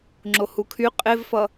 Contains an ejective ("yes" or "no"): yes